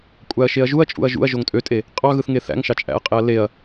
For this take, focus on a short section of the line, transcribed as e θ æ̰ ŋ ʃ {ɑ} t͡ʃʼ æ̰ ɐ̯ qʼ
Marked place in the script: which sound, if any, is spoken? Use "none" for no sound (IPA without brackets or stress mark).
ɑ